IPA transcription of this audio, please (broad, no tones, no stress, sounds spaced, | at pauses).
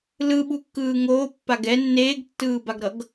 l ɯ ɓ u kː ɯː ŋ oː pː a ɡ ɛ nː eː ɡ tː ɯː b a ɡ ɾ ʌ ɡ